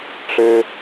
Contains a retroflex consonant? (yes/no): yes